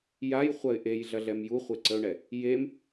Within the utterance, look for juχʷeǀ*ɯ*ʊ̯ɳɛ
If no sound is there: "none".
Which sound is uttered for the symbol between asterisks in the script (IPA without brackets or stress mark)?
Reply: ə